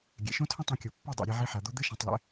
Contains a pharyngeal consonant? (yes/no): yes